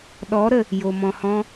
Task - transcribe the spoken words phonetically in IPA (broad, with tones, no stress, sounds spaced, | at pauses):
ɗ ɔ˨˦ ɾ ə˨ | j o˨ m ɔ̃˨ h ɔ̃˧